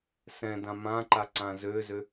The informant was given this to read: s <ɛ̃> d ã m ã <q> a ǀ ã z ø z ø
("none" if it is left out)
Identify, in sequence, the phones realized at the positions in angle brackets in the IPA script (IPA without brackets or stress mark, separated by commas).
ɛ̃, ǃ